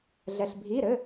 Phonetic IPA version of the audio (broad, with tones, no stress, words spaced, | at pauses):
ɮɛ˩ɬbʱi˩˧˩ɾɘ˩˧˩